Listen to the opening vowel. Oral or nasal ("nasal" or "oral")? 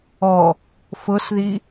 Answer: oral